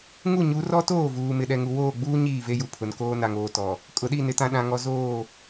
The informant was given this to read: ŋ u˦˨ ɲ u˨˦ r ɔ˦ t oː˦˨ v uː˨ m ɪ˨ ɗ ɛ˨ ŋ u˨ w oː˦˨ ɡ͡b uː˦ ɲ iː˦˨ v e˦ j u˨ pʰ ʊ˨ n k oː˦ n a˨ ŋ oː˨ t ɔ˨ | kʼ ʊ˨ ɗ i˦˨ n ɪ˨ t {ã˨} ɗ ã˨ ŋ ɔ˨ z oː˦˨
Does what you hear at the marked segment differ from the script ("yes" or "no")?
no